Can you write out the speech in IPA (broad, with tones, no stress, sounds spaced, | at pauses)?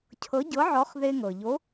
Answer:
cʰ ɤ˨˥ ɟ ɤ˨˥ ʕ ɔ˨˥ χ ð e˧ ŋ ɤ˩ ʎ o˨˥